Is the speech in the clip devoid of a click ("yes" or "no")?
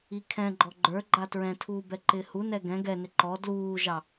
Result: no